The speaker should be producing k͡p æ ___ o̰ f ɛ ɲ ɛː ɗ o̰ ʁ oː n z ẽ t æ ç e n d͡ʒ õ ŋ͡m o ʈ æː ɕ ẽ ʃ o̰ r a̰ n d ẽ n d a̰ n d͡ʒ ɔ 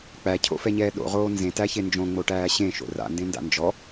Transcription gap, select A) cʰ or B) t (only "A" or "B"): A